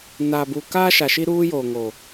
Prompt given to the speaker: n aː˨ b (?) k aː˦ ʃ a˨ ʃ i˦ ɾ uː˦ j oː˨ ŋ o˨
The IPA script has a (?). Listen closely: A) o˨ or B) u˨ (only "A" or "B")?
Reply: B